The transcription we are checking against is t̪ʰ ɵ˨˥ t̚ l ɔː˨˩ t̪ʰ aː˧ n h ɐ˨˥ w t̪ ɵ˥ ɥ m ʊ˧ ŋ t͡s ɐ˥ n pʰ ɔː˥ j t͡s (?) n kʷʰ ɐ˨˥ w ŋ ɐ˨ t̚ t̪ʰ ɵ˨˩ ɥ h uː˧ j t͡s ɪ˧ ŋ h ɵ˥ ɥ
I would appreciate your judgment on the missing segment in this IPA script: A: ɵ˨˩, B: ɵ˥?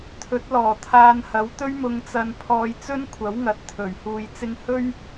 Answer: B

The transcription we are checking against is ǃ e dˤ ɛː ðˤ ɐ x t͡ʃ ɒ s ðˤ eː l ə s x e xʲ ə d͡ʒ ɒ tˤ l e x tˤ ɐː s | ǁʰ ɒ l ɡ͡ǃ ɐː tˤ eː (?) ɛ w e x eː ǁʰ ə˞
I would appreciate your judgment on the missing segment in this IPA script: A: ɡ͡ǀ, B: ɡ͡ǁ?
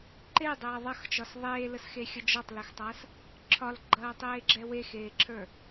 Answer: B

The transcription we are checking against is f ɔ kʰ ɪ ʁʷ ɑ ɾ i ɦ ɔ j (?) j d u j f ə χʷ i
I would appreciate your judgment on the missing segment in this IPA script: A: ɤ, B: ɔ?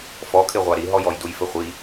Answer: B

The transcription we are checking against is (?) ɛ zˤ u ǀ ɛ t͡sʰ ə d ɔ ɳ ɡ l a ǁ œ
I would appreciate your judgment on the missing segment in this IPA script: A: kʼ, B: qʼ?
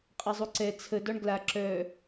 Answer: B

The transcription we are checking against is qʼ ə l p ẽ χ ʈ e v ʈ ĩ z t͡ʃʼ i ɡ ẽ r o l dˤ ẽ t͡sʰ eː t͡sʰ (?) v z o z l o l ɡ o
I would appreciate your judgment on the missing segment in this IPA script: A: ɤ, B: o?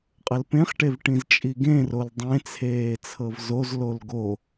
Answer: A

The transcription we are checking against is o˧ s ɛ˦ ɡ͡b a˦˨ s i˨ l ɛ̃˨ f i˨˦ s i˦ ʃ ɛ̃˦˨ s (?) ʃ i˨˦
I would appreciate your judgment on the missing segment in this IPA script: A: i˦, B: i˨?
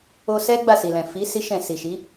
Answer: B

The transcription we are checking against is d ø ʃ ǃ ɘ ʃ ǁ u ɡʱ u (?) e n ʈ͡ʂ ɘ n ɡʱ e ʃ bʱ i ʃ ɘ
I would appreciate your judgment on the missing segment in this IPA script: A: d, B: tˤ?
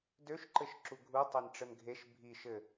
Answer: B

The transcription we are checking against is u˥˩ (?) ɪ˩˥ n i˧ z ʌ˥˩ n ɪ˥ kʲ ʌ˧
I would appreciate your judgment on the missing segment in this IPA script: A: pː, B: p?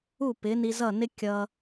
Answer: B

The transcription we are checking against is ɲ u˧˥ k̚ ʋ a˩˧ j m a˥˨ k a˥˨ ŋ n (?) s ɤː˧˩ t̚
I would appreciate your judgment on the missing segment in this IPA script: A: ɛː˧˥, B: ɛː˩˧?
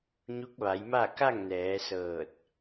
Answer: B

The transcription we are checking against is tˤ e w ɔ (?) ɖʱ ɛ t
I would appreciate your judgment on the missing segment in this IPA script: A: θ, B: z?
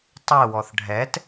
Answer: A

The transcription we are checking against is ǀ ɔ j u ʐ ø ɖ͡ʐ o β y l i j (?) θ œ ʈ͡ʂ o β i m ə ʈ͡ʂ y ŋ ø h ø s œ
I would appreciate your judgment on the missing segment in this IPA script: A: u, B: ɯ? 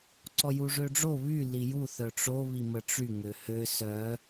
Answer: A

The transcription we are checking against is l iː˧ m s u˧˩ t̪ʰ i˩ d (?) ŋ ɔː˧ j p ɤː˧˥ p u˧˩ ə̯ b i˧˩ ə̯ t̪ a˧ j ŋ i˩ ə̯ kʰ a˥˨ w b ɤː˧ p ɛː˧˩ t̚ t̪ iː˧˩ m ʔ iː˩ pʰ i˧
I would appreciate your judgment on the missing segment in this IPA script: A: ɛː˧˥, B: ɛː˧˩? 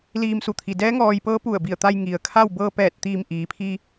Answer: A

